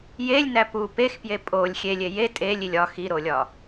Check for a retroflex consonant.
absent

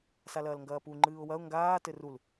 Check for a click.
present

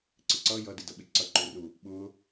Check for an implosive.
present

